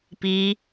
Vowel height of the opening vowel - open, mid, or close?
close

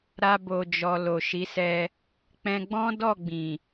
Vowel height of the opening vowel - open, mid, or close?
open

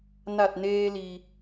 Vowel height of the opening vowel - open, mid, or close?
open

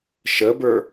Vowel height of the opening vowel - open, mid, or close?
mid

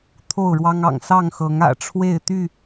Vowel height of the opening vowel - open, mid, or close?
mid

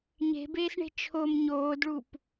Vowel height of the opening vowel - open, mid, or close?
mid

